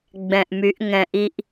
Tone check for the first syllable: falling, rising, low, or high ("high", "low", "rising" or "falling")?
low